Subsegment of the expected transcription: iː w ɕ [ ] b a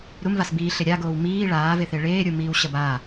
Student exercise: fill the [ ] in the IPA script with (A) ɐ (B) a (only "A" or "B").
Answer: A